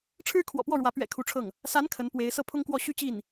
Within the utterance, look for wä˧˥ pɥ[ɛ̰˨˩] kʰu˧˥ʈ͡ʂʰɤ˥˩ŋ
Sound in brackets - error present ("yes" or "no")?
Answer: no